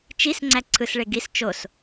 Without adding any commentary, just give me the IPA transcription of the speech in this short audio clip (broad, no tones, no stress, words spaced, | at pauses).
t͡ʃis ŋ͡ǀæǀʰɯsɭe ɡis t͡ʃos